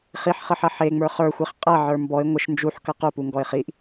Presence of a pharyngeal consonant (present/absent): present